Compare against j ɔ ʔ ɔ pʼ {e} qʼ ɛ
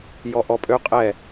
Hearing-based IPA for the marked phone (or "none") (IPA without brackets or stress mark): ø